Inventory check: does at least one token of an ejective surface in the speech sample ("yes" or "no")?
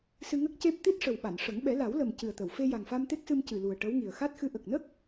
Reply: no